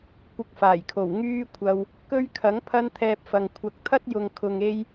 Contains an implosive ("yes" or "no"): no